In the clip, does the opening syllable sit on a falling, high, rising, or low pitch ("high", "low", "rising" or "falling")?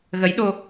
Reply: rising